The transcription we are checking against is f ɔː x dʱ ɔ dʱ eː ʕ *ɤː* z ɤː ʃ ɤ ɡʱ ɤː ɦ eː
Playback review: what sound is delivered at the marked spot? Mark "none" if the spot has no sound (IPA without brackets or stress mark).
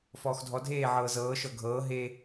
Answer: ɤː